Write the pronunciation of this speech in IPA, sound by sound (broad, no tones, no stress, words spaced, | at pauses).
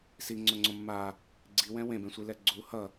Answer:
siŋ͡ǀoŋ͡ǀõ mːa | ɡ͡ǀiwɛ̃ wẽbẽsʷilɛ ɡ͡ǀu hʌ